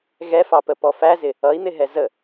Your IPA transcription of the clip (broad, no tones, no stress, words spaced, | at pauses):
ɣɛfɑpəpɔ fæzɪ | ʌi̯n̪ɪɦɛ zə